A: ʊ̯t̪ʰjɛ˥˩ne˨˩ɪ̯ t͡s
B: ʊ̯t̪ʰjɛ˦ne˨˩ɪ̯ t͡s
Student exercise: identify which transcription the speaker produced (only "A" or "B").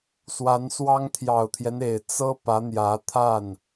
B